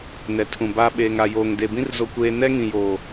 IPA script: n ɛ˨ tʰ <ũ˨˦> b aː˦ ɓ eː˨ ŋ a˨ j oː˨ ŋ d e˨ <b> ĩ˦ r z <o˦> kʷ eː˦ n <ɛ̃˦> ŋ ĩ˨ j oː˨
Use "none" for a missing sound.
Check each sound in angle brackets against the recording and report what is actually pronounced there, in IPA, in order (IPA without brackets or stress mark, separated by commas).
ũ˨, b, o˦, ɛ˦